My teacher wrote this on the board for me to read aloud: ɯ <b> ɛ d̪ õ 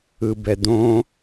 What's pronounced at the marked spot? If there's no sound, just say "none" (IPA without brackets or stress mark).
b